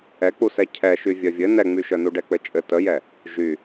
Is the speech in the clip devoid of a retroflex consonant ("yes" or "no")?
no